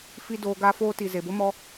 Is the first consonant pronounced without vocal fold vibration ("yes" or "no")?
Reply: yes